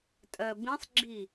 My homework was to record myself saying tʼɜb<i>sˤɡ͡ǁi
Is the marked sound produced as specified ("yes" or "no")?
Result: no